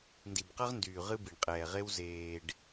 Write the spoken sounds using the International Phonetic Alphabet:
n d i˨ b q ʌ˦ ʁ n d yː˨ ʁ ɨ˦ b i˨ ɳ qʼ ɛː˨ ʁ e˦ w z eː˨ ɖ

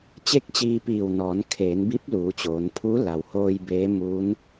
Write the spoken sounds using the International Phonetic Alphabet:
t͡ɕ e˥˨ k̚ t͡ɕ iː˧ p iː˧˩ w n ɔː˩˧ n kʰ eː˩˧ n b i˧˥ p̚ l uː˩˧ t͡ɕ oː˩˧ n pʰ u˧˥ l a˩ w h oː˧ j b eː˧˥ m u˧˥ n

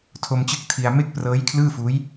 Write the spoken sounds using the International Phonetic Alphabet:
tʰ o˧ m t͡ɕ ɯ˦˥ k̚ tʰ i˧ a̯ m e˥˩ k̚ p r ɤː˦˥ j kʰ l ɯː˥˩ f uː˦˥ j

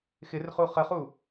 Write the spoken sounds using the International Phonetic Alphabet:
x ɪ r χ u χ ə χ u

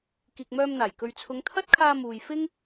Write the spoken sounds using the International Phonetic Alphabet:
k iː˨ k̚ m œː˧ m n̪ aː˨˩ j k ɵ˨ ɥ t͡sʰ ʊ˨˧ ŋ t̪ʰ ɐ˥ t̚ kʰ aː˧ m uː˨ j f ɪ˥ ŋ

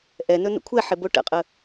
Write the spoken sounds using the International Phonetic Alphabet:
ʔ ɛ n ɵ n ə̰ kʷʰ ɛ ħ ɪ b o ʈ ə̰ qʼ ə

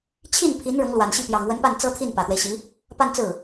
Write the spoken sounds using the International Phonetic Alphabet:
t͡ɕʰ i˥˩ n pʰ i˧˥ n ɻ ʊ˧˥ ŋ l w a˨˩ n ɕ i˥˩ p j ɑ˨˩ ŋ w ə˧˥ n p a˥˩ n t͡s ɤ˥ t̪ʰ i˥˩ n p ä˨˩ t̪ w e˦ ɪ̯ ɕ i˧˥ | p a˥˧ n t͡s ɹ̩˥˩

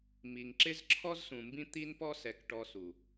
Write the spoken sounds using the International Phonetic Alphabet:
m i˨ ŋ ǁ ɪ˦ z ǁʰ ɔ˦ z s ũ˨ m b ĩ˦ t̪ i˦ n p ɔ˦ s ɛ˨˦ k ʈ ɔ˧ s u˨

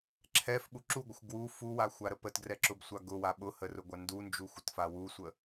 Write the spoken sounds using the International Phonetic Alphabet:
ǁʰ ɛ f ɓ u ǁ u ɡʷ ə xʷ ɡ w u f u w a xʷ a ɾ ə p ə t ɡ r ɛ ǁ ʊ b sʷ a ɡ ʊ w a ɓ ʊ h ə r ʊ ɡʷ a n d u n d͡ʒ u xʷ ə t f a w u sʷ ə

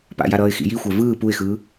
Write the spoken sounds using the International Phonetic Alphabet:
p a̰ j a ɾ ʌː ɪ̯ x ḭ j i xʷ ɛ v ɯː p u ɪ̯ x ɯː

